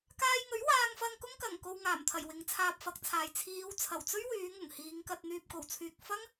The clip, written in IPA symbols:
k aː˧ j ŋ ɵ˨˥ ɥ w aː˧ ŋ f ɐ˧ ŋ k ʊ˥ ŋ k ɐ˨˩ ŋ k o˧ w ŋ aː˨˩ m t̪ʰ ɐ˨˩ j w ɪ˨˧ ŋ t͡sʰ aː˧ p̚ f ɐ˨˥ k̚ t͡sʰ aː˨ j t͡sʰ iː˨˧ w t͡sʰ ɐ˨˩ w t͡s ɵ˥ ɥ w yː˨˧ ŋ ʊ˨˩ ŋ h iː˨˧ ŋ k ɐ˧ t̚ n̪ yː˨ p̚ k o˨˩ w t͡sʰ yː˨ k̚ f ɐ˥ ŋ

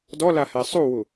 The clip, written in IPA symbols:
d ɔ l a h ɛ sˤ u w u

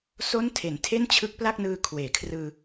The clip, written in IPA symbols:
s o˦˥ n tʰ e˩˦ n tʰ e˥˩ n t͡ɕʰ ɯ˦˥ k̚ p l a˥˩ k̚ n ɯː˧ kʰ w eː˩˦ kʰ r ɯː˧

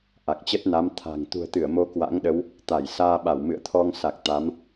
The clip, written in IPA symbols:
ʔ a˨˩ k̚ t͡ɕ ə˦˥ t̚ n a˨˦ m t̪ʰ a̤˨˩ ŋ t̪ ṳ˨˩ ə̯ t̪ ɨ˧˩ ə̯ m o˨˦ k w a̰˧˥ ŋ ɗ ə˨˦ w | t̪ a˧˩ j s aː˧ ɓ a˧˩ w m ɨ̰˧˨ ə̯ t̪ʰ ɔ˧ ŋ s a˨˩ k̚ t̪ a˨˦ m

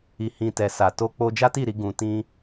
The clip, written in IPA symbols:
i˨ h ĩ˨ t ɛ˨ s a˨ t o˧ k͡p o˧ d͡ʒ a˦ t i˦˨ ɾ i˧ ɡ ũ˨ t ĩ˧

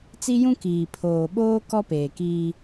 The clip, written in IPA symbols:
t͡s i˦ j ũ˦ k iː˨ pʰ oː˨ ɓ oː˦ k ɔ˦ p eː˨ k iː˦

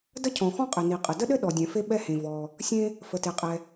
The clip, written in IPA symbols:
d ə˥ cʰ ɔ̃˩ x ɔ̃˥ qʼ ɘ˩ n i˩ qʼ ə˩ d ə˥ ɗ ɘ˥ ɗ ɔ˩ dʲ ɛ̃˩ f e˥ ɓ ɛ˥ h ẽ˩ v ɔ˩ | sʲ ẽ˥ | f ə˩ t e˩ qʼ ɛ˩

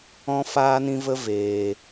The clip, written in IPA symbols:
ɔ̃˦ f aː˦ n ĩ˦ v ə˦ v eː˧

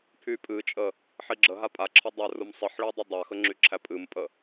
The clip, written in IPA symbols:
pʰ y pʼ ɨ t͡ʃʼ ə | ħ i ɡ͡ǁ ə ɦ a pʼ a ǁʰ ə dˤ æ r u m sˤ ɨ ħ ɭ i dˤ ɨ dˤ a x ə ŋ͡ǁ y ǁʰ æ pʼ ɨ m pʼ ə

